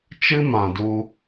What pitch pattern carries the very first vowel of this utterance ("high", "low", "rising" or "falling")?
high